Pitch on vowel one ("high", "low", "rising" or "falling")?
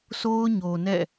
high